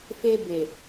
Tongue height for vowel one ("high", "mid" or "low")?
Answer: mid